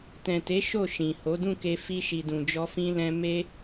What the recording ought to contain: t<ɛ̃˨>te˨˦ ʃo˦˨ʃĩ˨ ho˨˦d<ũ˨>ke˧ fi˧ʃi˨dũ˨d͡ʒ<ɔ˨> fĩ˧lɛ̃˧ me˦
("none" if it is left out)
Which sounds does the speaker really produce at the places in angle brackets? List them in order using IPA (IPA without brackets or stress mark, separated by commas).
ɛ̃˨, ũ˦˨, ɔ˧